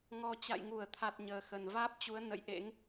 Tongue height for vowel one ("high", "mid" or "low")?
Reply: mid